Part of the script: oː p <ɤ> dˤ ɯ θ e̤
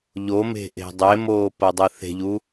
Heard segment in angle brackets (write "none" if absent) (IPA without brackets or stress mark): ɤ